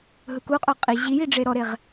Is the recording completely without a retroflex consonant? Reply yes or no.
no